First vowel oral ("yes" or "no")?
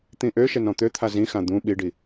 no